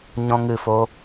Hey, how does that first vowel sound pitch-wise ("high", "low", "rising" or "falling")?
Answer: high